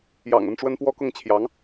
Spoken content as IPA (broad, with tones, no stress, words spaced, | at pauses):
jɑ̰˨˩ŋə˥˩nʈ͡ʂwə˥n pwɔ˥kʊ˥˩ŋt͡ɕʰjɑ˧˥ŋ